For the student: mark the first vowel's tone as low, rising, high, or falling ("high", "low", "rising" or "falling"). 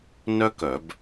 high